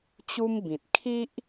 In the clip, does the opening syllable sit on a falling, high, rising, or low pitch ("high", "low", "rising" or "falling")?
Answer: high